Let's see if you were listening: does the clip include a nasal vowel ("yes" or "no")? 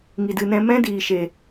yes